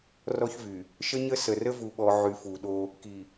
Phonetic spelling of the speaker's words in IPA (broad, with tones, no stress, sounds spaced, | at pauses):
r ɔ˦ ç v y˨ | ʃ ə˦ ɲ ə˦ s ə˨ r ə˦ v u˨ ɓ ɔ˨ ʕ y˨˦ f u˨ ɗ o˦ | k i˨